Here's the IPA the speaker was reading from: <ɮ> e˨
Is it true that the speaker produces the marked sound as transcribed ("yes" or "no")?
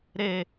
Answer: no